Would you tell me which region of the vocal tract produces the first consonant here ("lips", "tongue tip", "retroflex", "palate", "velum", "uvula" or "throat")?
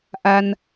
throat